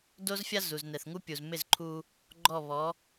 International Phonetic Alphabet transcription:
do˥zfʲa˥ zu˩znɛ˩θŋu˥pʲu˩z mɪ˥˩zǃʰu˧ | ɡ͡ǃɔ˥˩βɔ˩˥

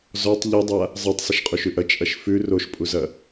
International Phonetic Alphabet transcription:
zɔtˤ ʎɘdˤa | zˤɤtˤ sˤɐʃqʼuʃʉʔɐ t͡ʃʼɐʃfʉ roʃpʼuzɐ

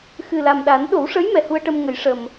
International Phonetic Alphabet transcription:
xɨ˨˩la˨˩mɗa˨˩˦n ɗo˨˩˦wʂə˧˥j mɛ˨˩hu˧ə̯ʈə˧m ŋə˨˩˦j ʂə˨˩m

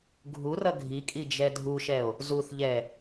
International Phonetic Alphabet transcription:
ɡʱurʌ ɡʱikʼid͡ʒɛ dʱuʃɛo̯ | zuθʎɛ

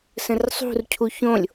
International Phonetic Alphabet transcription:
sə̃rsˤṳrcʰu çõlʲ

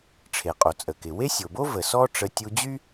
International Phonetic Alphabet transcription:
ʈ͡ʂʰe˩qʼo˩t͡sʼə˩kɪ˩ we˥sʲo˩bo˥ və˩ sɔ˥ʈ͡ʂə˧ tʲu˧d͡ʑy˥

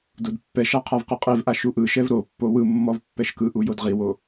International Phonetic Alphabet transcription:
dodpːɛʃa qʰavqɯqʼivʔa ʃuʔɯʃɛv ɾo pːowɯmːɔv pːɛʃkɯʔu jodʁiwo

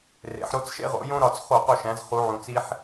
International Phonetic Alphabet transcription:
rḛ˩˧ħɾo˧t͡s ʃḛ˧ʁo̰˩˧jõ˧ ɾɒ˧˩˧t͡sχo˧˩˧qo˩˧ʃæ̃˩˧z χu˩˧ ʕũ˩t͡si˧ħ

